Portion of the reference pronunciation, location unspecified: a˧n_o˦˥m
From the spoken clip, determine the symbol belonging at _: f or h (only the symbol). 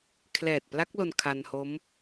h